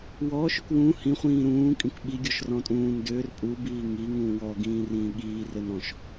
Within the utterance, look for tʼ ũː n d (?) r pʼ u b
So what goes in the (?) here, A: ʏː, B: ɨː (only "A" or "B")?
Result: A